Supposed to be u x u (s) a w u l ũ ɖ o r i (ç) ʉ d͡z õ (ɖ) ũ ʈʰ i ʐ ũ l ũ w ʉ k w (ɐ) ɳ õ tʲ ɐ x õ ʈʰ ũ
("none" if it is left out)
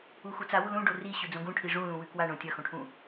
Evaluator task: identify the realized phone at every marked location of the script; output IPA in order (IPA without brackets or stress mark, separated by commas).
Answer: t͡s, ɕ, ɡ, a